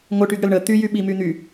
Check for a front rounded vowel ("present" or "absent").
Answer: present